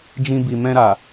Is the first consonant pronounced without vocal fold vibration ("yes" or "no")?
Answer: no